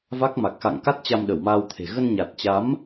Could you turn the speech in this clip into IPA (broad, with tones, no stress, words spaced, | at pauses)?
va˦˥k̚ma˨˩k̚ xa̰˧˨ŋka˦˥t̚ t͡ɕa˧mɗə˧˩wmaː˧wt̪ʰe̤˨˩ ɣə˧nɲa˨˩t̚t͡ɕa˨˦m